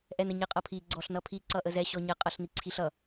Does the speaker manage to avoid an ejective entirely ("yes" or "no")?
no